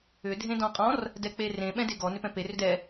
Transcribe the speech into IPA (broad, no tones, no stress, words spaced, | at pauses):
ʏ dʱẽdɔ̃qʼɔ̃r | dɛk͡perẽ ɓɛ̃deɡɔ nʏpɛ̃perʏd ɛ